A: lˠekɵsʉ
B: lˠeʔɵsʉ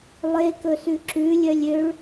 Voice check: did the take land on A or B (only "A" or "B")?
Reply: A